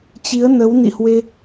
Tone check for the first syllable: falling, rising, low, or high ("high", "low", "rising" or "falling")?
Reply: rising